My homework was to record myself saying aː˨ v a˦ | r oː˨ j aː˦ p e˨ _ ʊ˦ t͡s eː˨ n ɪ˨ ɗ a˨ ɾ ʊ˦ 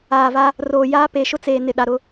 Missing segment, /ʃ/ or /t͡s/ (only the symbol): ʃ